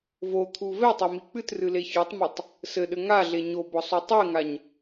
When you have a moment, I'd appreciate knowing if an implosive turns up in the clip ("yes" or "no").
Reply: yes